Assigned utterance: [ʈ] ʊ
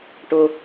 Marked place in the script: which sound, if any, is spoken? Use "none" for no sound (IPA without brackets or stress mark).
ʈ